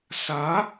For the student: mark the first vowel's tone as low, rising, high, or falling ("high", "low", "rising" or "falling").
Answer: rising